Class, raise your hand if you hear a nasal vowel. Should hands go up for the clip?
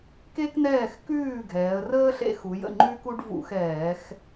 no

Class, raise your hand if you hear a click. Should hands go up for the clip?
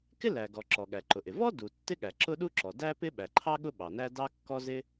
yes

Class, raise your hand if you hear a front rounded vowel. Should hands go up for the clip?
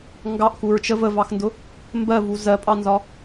no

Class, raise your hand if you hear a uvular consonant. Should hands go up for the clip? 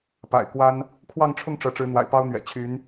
no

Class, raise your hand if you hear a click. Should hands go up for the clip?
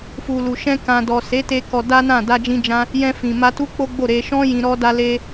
no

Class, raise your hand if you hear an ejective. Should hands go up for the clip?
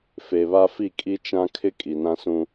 yes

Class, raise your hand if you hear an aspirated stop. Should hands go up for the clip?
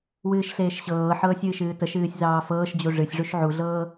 no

